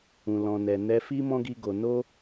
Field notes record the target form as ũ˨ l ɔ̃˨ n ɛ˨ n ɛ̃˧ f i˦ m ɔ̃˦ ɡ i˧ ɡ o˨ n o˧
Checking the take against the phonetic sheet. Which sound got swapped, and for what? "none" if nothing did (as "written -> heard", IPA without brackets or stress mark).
ɛ̃˧ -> ɛ˧